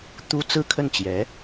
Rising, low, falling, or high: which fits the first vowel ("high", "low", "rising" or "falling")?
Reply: high